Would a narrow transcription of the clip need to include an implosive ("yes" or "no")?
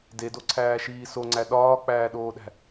yes